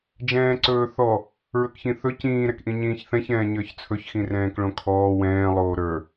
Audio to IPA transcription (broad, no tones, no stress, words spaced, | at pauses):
d͡ʒɛ̃ːǀɵːθɔ | ɹɵkçĩθɵ cĩːɾɛkʔĩ ɲĩːçθɛ̃çɛ̃ː ɲə˞çt͡sʰɵçxĩ rɛ̃ːkɭõkʰɔː wɛ̃ːlˠoː ɾə˞